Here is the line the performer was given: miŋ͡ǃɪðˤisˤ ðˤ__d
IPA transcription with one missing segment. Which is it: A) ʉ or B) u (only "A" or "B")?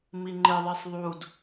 B